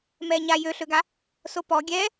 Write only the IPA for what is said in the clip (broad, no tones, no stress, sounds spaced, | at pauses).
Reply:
m ɛː ɲ a j ø ɬ ø ɡ a | s o p ɔ ɡʲ ɛː